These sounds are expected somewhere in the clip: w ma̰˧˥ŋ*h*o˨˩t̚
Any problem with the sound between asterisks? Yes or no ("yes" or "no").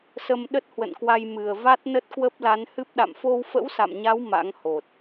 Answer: no